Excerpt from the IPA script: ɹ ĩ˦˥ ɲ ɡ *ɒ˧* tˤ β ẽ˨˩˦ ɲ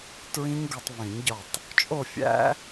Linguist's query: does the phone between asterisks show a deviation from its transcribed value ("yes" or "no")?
no